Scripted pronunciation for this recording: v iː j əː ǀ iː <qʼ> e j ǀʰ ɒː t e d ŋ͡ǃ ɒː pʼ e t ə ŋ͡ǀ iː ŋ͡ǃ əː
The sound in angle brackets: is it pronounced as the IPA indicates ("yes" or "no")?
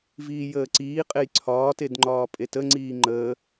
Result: yes